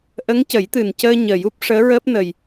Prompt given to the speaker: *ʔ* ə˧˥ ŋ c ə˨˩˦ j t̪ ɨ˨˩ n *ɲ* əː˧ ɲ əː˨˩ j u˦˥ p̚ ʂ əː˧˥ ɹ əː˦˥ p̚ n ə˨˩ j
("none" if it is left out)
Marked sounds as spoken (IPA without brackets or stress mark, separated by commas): ʔ, c